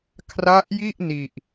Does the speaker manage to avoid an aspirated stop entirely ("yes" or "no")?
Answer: no